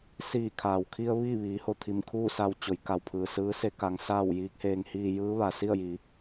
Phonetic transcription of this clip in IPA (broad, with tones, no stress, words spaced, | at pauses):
siː˧˩kʰaː˩wkʰi˧ə̯ ʋiː˥˨ʋiː˩˧ho˧˩ t̪ʰi˧˩mkʰuː˥˨sa˧w t͡ɕo˩˧jka˩w pʰɯː˩sɯː˧˥se˧˥ ka˩˧ŋ saː˥˨wjiː˧˥k̚heː˧ŋ hiː˧jɯː˧˥ ʋa˩si˥˨ə̯jiː˩˧